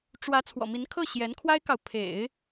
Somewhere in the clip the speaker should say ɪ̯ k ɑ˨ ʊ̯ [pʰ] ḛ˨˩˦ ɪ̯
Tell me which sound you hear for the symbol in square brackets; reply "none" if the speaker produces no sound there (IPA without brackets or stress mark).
pʰ